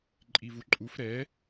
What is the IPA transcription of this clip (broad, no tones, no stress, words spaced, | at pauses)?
ǃʼivuǃʼuf ɾɛ